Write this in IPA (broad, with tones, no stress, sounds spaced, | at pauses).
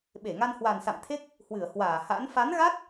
ɓ e˧˩ ŋ a˧ n h w a˨˩ n s a̰˧˨ m t̪ʰ e˦˥ k̚ | h w ɨ˧˩ ə̯ h w aː˧˩ h a̰˧˥ n f a˨˦ n ɣ a˦˥ t̚